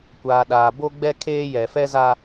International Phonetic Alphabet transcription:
kʷaː˨ɗaː˨ bo˦ɡ͡bɛ˦kʰeː˦jɛ˨ fɛ˦za˦

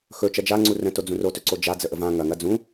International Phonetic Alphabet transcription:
xɵ t͡ʃɐd͡ʒaŋ͡ǀu rə̃to d͡zũrotɵ ǀod͡ʒa d͡zəʔəvã ŋɐŋɐ d͡zũ

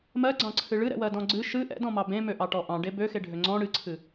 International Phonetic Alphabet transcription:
mɜɡ͡ǀɑ̃ǀʰɨ ɭɨɾɛ̰wɜdɔ̃ ɡ͡ǀɨ ʃɨ ʔɛ̰dɔ̃mɑ bẽmøʔɑʈɔ ʔɑ̃ɖe bøxeɖʱø ŋ͡ǀɔ̃ ɽɨǀʰɨ

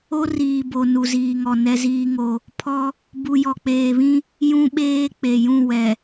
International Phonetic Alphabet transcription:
o˦riː˨bo˨ nu˨ziː˨ŋɔ˨ nɛ˦ziː˦ŋo˦ | pʰɔ˦ | bu˨jɔ˨k͡peː˨βĩ˦ | jũ˦ɓeː˦ k͡pe˨jũ˦˨ wɛ˨

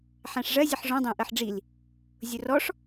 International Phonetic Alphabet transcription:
ħæ̃ʂʐɜ zʲəħʐɔ̃ dˤæ̃ʔɜħɖ͡ʐil | zʲʊrɔʂ

